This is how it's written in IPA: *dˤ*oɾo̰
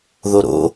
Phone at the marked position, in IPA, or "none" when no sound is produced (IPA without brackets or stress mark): ð